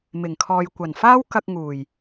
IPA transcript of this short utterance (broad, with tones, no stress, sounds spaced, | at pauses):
m ɪ˨˩ ŋ kʰ ɔː˨ j kʷ ɐ˨˩ n f aː˥ w k ɐ˧ k̚ ŋ uː˨˩ j